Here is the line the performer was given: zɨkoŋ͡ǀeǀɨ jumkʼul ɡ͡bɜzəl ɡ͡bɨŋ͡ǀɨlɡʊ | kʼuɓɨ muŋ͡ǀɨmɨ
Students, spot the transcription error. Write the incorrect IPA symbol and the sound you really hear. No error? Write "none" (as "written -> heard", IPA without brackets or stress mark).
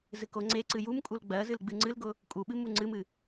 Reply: ə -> ɨ